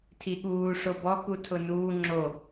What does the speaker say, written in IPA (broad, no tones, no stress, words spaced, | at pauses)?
tʰiɠuː ʂobɔ kutʰʊnuː ŋ͡ǁo